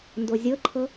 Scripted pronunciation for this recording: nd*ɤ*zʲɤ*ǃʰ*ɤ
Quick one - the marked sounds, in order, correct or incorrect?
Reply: incorrect, correct

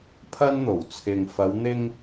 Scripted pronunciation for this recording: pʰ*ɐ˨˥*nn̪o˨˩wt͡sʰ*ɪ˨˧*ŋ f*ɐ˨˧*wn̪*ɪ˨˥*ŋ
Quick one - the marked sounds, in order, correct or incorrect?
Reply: incorrect, incorrect, correct, incorrect

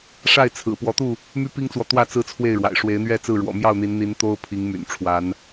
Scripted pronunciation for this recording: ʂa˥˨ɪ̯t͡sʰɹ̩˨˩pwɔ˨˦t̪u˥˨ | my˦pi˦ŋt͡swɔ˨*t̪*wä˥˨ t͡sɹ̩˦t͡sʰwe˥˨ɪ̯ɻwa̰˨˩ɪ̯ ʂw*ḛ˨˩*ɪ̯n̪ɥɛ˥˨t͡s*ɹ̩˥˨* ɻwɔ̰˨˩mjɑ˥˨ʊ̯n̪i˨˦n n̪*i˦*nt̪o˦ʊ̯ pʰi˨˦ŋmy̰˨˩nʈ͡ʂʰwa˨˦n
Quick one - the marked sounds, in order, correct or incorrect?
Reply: correct, incorrect, correct, incorrect

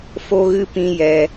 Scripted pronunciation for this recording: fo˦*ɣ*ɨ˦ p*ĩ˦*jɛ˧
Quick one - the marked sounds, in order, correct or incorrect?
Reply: correct, correct

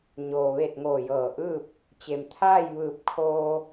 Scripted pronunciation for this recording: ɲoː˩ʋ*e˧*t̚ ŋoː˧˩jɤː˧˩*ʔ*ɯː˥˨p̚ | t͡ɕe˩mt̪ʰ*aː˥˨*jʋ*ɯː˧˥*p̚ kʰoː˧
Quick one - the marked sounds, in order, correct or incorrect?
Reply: incorrect, correct, correct, incorrect

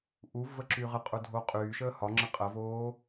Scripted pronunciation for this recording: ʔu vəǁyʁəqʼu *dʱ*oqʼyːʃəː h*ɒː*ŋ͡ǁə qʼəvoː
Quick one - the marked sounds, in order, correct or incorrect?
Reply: correct, incorrect

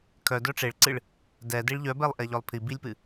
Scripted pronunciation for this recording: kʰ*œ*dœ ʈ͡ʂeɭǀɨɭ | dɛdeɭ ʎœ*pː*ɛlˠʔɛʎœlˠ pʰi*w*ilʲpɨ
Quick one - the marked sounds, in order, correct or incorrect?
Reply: correct, incorrect, incorrect

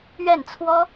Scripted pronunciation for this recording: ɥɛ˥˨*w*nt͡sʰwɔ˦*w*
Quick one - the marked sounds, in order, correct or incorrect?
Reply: incorrect, incorrect

